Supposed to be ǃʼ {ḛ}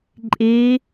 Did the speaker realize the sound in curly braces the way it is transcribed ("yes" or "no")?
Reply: no